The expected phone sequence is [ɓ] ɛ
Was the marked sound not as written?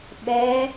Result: no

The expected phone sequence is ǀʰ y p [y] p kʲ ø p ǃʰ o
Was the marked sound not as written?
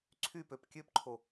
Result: yes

